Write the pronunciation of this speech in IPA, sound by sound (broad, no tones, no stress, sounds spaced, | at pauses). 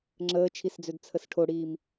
ŋ͡ǁ əː t͡ʃʰ i s d͡z ø d t͡sʰ ə s ʈʰ o ɽ iː m